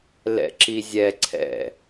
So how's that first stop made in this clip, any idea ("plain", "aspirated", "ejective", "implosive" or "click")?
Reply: click